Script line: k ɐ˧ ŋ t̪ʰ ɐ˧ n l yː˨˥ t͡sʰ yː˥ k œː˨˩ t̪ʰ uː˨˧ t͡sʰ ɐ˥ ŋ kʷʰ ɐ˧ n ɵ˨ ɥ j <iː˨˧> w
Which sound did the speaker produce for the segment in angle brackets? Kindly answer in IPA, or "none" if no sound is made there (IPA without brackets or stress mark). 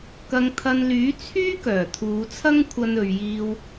iː˧